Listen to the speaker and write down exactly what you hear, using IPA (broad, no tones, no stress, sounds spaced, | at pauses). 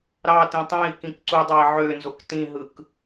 ɾ ɑ t ĩ tˤ ẽ i̯ k ĩ k ǀ u dˤ ɑ i̯ ʕ ø n z o k t ĩ ɦ ɯ k